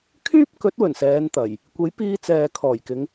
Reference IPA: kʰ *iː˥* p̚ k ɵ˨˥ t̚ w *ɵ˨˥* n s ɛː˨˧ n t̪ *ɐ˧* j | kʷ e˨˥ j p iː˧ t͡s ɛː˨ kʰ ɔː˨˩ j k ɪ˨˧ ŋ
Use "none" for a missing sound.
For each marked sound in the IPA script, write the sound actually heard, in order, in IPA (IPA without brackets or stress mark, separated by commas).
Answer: yː˥, ɵ˨˩, ɐ˨˩